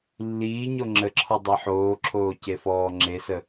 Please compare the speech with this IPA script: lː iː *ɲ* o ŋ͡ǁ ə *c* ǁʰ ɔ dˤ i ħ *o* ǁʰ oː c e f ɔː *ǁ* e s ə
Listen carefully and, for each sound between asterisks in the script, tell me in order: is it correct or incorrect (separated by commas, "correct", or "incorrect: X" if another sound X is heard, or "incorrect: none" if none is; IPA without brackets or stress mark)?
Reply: correct, incorrect: none, incorrect: oː, incorrect: ŋ͡ǁ